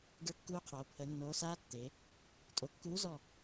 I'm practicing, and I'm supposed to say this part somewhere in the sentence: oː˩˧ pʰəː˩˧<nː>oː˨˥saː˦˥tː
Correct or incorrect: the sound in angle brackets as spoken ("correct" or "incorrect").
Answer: correct